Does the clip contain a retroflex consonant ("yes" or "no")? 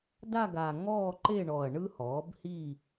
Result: yes